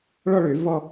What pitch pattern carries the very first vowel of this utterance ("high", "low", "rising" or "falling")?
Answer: falling